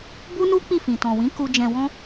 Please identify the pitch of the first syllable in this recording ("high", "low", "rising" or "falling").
high